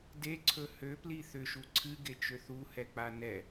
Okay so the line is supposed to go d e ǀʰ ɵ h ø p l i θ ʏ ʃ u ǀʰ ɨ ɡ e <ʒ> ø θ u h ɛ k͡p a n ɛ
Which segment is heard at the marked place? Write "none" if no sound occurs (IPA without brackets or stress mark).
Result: t͡ʃ